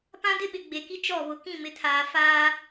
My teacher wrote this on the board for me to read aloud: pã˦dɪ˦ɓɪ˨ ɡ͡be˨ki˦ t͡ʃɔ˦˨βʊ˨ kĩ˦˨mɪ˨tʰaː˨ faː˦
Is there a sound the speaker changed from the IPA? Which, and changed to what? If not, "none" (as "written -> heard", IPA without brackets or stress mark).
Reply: none